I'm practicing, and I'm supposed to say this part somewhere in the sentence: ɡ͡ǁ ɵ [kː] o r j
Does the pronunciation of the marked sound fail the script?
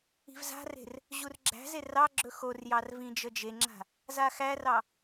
yes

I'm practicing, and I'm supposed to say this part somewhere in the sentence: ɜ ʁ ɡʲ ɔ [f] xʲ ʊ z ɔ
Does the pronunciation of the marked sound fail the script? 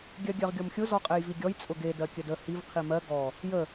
yes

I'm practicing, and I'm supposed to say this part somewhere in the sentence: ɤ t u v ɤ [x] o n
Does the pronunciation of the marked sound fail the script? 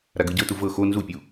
no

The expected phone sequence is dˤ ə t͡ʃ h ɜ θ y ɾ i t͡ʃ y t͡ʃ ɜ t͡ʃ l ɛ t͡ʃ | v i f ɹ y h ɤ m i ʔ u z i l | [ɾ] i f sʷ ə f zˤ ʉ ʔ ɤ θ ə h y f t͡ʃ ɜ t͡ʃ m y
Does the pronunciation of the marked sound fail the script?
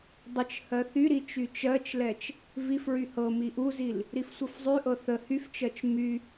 no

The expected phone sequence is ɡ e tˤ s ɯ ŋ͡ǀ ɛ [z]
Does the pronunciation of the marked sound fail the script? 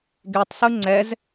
no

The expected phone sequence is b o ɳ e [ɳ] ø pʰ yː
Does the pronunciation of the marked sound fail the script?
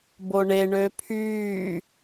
no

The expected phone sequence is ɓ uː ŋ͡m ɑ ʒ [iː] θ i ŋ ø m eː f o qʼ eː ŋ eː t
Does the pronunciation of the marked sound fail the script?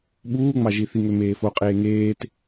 yes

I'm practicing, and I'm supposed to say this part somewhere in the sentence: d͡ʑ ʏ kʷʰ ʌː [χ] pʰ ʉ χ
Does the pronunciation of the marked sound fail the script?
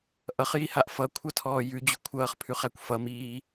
no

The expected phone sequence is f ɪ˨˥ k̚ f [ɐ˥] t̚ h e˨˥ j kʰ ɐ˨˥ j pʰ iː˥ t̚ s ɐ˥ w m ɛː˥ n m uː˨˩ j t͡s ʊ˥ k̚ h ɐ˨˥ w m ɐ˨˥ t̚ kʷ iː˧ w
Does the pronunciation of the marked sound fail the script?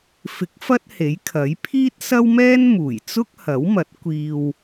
no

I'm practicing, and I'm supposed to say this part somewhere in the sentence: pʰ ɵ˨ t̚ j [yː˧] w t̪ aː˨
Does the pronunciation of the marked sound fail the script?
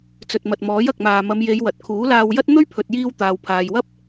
yes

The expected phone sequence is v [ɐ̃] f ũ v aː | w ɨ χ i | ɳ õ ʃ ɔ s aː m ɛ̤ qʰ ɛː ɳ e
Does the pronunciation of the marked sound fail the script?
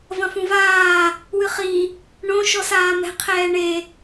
no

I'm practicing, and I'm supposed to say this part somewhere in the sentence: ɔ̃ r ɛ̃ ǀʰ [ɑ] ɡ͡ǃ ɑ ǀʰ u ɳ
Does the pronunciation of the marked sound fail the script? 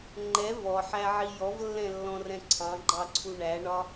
yes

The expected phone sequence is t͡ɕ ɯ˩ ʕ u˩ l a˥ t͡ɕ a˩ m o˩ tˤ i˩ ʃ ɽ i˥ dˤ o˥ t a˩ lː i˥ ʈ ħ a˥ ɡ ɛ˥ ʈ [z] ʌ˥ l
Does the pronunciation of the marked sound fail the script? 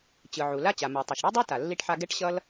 yes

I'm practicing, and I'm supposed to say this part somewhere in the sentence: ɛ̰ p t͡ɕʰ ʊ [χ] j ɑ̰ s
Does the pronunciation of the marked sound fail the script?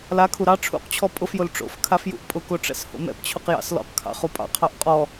yes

